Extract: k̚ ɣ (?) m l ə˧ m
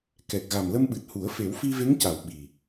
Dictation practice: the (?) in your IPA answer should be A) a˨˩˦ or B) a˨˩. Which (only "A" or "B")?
B